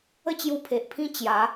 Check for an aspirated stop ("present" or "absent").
present